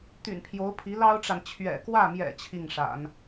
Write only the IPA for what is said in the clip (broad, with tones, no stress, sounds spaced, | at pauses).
t̪ y̰˨˩ n pʰ j o˧˥ ʊ̯ pʰ i˧˥ l ɑ˥ ʊ̯ ʈ͡ʂ a˨ n t͡ɕʰ ɥ ɛ̰˨˩ k w ä˥˩ m j ɛ̰˨˩ t͡ɕʰ i˥˩ ŋ ʂ a̰˨˩˦ n